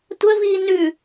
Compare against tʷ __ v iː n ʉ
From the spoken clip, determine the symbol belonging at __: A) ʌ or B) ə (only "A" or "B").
B